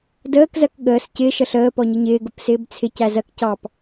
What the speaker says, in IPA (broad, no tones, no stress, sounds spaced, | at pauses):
d əː k z ɜ k ɠ əː s c ɪ ʃ ə ɬ əː p ɔ ɲ ɪ ɲ ɪː ɡ ʊ p s ɪː b t͡sʰ ɪ c æ z ɜ k c ɑ p